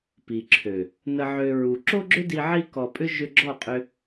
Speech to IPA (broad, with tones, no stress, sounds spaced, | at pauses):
p i˨ ǁʰ ø˨ | n ə˧ ʕ ø˧ ɹ u˧ ǁ o˦ ɡ͡ǁ ʏ˦ d i˧ ʕ i˦ k ɔ˧ pʼ ʏ˦ ʒ ʏ˧ ɡ͡ǁ ɔ˦˨ qʼ ʏ˧